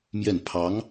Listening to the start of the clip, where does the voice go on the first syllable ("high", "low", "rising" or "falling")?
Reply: falling